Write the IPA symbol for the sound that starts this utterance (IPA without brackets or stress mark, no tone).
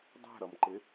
dˤ